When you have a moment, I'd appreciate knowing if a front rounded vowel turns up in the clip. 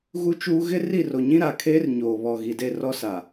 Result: no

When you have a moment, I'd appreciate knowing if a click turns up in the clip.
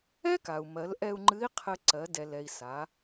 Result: yes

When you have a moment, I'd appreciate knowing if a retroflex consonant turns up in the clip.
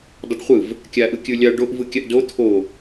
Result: yes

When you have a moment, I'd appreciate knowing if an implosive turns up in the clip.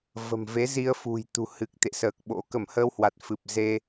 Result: yes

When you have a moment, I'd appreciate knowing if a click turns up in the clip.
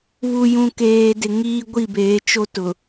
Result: no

